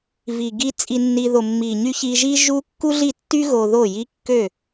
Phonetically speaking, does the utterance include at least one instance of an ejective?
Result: yes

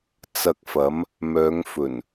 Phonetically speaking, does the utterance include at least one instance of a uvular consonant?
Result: no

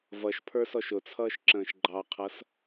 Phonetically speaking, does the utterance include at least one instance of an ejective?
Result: no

